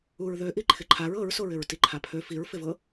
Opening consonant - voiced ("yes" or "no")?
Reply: yes